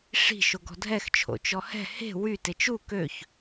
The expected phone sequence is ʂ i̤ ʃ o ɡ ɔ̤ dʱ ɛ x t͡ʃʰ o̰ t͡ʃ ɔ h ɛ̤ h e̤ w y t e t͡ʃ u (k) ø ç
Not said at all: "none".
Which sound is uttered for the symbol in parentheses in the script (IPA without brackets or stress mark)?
k